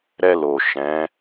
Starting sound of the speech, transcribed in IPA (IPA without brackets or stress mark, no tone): ɾ